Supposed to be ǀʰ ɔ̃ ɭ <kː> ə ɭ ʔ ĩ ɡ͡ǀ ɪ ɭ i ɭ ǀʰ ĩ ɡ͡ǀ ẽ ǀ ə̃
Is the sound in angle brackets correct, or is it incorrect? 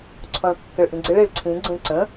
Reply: correct